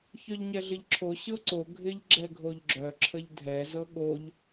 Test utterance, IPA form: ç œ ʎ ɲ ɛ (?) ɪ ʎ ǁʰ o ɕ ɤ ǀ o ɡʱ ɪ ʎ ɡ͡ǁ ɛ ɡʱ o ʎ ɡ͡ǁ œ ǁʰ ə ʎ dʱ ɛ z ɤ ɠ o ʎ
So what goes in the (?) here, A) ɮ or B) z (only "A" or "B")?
A